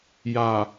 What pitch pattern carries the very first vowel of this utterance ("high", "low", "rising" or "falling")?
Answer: low